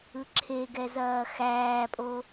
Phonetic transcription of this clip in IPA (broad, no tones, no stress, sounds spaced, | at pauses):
ɯ ǁʰ e ɡ ɛ z ɐː x æː pʼ o